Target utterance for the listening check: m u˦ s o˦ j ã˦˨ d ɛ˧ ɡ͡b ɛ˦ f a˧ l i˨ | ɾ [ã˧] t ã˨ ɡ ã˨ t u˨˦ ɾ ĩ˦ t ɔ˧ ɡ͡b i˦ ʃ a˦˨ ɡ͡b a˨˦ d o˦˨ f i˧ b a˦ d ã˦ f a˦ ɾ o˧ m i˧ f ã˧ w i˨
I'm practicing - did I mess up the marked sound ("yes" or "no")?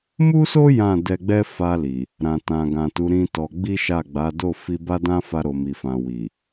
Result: yes